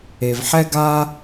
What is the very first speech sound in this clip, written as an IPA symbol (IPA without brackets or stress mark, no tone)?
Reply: e